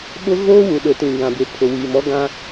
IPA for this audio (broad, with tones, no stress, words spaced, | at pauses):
ɓʊ˦ɣoː˦wu˨ɗʊ˨ tĩ˨ ɡã˨bɪ˨pʰʊ˨ wiː˨mɔ˦ɡã˦